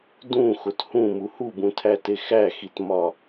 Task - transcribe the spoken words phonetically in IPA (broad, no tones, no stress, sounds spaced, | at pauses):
d ũ x o t h ũ m u h u b ũ tʰ æ t e x æ x i t m ɒ